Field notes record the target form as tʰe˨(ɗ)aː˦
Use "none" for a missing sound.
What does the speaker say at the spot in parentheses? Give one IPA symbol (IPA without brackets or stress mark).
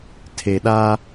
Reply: ɗ